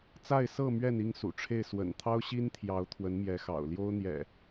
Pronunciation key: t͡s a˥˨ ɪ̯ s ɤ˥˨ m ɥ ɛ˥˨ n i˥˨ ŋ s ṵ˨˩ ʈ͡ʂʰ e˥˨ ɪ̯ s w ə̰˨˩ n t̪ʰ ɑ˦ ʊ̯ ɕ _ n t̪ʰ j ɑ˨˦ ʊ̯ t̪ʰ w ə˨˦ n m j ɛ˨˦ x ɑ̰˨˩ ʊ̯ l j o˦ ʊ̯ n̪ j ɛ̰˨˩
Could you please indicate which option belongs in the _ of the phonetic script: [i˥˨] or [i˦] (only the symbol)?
i˦